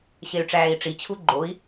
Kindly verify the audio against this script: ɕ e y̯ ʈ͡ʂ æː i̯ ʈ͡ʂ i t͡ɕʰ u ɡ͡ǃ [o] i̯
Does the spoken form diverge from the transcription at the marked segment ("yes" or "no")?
no